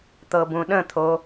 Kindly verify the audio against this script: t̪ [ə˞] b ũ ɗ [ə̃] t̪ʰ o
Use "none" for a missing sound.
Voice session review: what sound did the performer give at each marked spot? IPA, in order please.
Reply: ɤ, ə̃

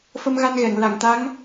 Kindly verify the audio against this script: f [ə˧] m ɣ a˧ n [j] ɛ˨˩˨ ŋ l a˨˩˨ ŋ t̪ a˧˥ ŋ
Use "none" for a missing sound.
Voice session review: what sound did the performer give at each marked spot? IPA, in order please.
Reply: ə˧, ɣ

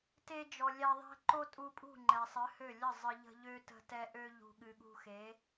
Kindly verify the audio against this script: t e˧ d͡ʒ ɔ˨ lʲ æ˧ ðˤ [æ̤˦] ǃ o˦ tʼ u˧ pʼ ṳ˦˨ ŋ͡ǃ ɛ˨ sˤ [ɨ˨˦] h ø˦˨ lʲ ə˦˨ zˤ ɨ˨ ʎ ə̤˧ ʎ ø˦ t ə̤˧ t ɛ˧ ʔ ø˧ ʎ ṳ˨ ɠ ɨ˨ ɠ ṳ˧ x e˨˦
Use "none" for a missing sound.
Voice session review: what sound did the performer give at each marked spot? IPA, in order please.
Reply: æ̤˦, ɨ˨˦

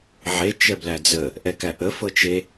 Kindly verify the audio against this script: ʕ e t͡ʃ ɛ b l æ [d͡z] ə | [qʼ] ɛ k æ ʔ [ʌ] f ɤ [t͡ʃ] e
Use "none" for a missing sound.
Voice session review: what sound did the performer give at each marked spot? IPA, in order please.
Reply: d͡z, ʔ, ə, t͡ʃ

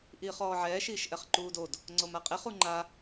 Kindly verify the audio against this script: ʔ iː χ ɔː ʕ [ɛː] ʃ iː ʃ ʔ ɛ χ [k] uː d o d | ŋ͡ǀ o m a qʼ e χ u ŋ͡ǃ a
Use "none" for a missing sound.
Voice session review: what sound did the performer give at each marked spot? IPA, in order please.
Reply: ɛː, ǃ

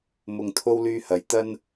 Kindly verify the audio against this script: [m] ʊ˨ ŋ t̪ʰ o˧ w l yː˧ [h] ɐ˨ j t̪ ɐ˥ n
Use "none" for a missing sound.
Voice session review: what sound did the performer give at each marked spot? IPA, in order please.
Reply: m, h

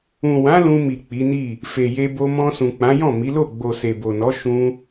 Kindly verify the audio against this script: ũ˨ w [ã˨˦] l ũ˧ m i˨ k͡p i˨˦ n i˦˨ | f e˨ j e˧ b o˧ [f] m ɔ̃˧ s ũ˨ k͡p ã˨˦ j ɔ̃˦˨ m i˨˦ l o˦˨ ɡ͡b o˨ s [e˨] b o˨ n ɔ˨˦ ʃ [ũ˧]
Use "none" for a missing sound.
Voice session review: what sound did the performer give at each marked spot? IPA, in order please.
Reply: ã˨˦, none, e˨, ũ˧

